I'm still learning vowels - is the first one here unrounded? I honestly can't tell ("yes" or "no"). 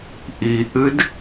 yes